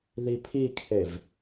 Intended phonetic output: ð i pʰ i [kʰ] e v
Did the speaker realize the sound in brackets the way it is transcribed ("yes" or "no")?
yes